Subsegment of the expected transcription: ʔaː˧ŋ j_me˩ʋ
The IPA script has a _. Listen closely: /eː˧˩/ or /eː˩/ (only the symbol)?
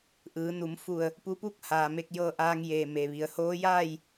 eː˧˩